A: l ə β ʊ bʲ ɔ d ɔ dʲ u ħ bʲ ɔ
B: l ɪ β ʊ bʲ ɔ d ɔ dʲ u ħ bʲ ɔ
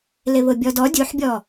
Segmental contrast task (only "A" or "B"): B